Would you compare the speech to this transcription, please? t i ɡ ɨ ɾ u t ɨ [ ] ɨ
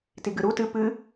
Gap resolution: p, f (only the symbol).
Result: p